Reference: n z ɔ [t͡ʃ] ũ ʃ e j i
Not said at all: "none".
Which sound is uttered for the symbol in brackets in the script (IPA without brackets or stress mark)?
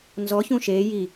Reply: ç